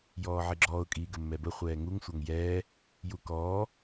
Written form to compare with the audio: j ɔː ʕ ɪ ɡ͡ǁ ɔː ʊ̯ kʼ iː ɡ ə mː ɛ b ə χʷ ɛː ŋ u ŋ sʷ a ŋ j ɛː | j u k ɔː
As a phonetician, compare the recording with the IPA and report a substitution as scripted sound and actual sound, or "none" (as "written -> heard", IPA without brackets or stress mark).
none